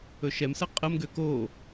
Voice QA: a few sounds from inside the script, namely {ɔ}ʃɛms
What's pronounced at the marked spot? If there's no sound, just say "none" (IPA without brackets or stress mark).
ɵ